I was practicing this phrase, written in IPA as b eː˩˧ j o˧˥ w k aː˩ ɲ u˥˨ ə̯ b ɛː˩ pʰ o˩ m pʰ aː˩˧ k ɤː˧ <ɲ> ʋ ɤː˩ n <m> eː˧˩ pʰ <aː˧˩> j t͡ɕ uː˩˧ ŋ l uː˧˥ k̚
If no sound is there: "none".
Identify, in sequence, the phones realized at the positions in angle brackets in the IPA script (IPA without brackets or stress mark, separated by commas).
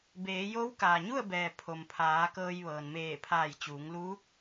j, m, aː˧˩